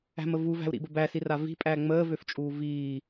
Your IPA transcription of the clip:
æ̤ m ə v u v æ̤ u̯ ɾ ḭ b ə b æ s i r a v i̤ pʼ æ ŋ͡m əː v ø f t͡ʃʼ uː v iː

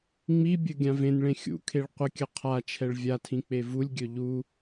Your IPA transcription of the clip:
ŋ͡m i bʲ ɵ ɡʲ ã v ẽ n ɭ ẽ xʲ ṵ kʰ e ɭ qʷ ə kʲ ə qʰ a t͡ʃʰ ɛ ɭ vʲ a tʰ ĩ k͡p e v u lʲ ɡʲ ɵ ʎ u

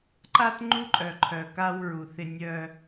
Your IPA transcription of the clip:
ǃ a˦ t ŋ͡ǃ u˦ ǃʼ œ˨ ǃʰ œ˨ k a˦ w ɹ u˨ θ ɪ˦ nʲ œ˦

